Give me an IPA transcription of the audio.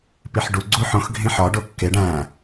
p i ħ ɖ u ɡ͡ǀ u ħ õ x ɡʱ ĩ ħ ɒ ɖ o kː e ɖ æ̃

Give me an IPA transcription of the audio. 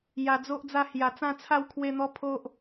j a˧ d͡z o˦ ʔ d͡z a˦ h j a˧ t͡s ã˥˧ t͡sʰ a˥˧ w kʰ w e˦ n̪ ɔ˦ pʰ o˦ ʔ

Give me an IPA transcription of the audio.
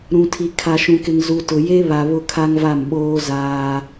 ɾ ũ˨ tʰ i˨ kʰ a˨ ʃ ũ˨ k ɪ˨ ŋ z u˨ t ʊ˨ j e˦ β a˨ β ʊ˦ kʰ a˦ ŋ v a˦˨ m ɓ oː˦ z aː˦

